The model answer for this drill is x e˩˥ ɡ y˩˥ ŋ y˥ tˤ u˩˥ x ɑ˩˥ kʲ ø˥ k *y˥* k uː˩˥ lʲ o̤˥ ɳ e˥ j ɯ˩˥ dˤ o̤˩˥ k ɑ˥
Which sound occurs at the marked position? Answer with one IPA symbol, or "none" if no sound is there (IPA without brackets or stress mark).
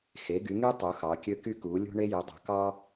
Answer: y˥